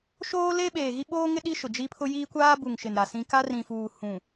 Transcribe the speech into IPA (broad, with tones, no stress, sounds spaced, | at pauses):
ʃ oː˦ l e˦ ɓ eː˨ ɣ i˦ ɓ oː˦ ŋ ɪ˦ ɗ i˦ ʃ ʊ˨ d͡ʒ i˦ pʰ ʊ˦ j iː˦ kʷ aː˦ b u˨ ŋ ʃ ɪ˨ n ɾ a˨ s ĩ˦ k a˦ r ĩ˨ f uː˨ h ũ˨